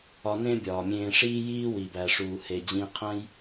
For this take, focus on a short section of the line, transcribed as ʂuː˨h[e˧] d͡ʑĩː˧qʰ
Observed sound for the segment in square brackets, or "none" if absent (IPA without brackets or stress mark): e˨